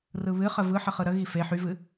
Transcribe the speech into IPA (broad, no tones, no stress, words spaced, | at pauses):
rɯβɨχə vɯħə χɯɾəɣi fe ħyvɨ